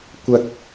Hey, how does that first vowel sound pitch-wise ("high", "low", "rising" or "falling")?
high